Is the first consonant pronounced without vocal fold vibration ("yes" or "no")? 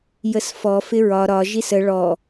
no